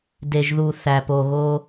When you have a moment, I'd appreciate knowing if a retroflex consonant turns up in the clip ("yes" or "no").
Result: no